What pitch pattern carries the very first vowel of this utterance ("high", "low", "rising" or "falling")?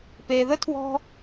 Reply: low